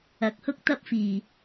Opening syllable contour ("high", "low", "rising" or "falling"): rising